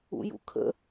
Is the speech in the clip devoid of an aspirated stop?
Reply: no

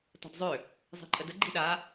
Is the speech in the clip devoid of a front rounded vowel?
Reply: no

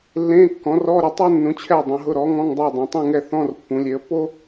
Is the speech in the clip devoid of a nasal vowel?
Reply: no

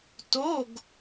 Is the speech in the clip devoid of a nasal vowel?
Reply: yes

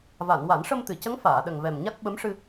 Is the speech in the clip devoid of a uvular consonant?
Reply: yes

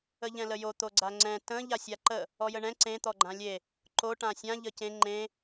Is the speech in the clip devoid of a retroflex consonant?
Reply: no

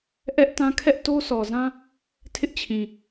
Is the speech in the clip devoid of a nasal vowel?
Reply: no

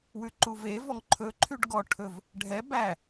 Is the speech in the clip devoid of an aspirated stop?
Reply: no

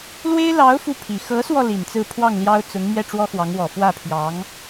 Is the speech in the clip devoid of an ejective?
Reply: yes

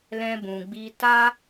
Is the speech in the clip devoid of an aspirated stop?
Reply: yes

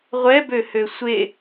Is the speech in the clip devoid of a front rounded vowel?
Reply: no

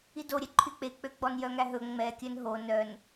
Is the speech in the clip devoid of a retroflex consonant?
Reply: yes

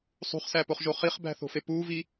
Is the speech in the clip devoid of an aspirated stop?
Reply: yes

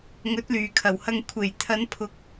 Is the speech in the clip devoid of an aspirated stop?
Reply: no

